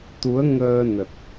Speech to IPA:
t̪ u˨˦ ə̯ ŋ əː˧ n ə˨˩ t̚

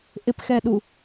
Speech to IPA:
ʔ ɪ p x ɛ ɗ u

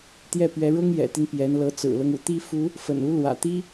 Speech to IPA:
t̪ j ɛ˥˩ p ɥ ɛ˧˥ ɻ ʊ˥ ŋ j ɛ̰˨˩ t̪ i˦ n p j ɛ˧˥ n l ɤ˧˥ t͡s ɹ̩˨˩ l ɤ˦ ŋ ṵ˨˩ t̪ i˥ f u˧˥ | f ə̰˨˩ n u˧˥ l w ä̰˨˩ t̪ i˥

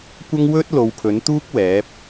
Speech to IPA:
kʷ ɐ˥ ŋ w ɵ˥ t̚ l o˨ w pʰ ɵ˨˥ n t̪ uː˥ k̚ w ɛː˨˥ p̚

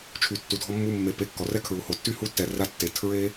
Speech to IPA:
t͡ʃʰ y˨ tː u˨ dʱ ɔ˧ mː u˧ mː e˨ p e˧ kː ɔ˨ r ɛ˦ kʰ ɹ u˨ h o˨ tː y˧ h u˧ tː ɛ˨ r a˧ tː e˨ tʰ ɹ e˦

